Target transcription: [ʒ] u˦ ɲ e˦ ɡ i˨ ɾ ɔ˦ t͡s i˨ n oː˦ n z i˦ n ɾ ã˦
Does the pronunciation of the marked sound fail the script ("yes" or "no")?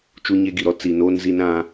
yes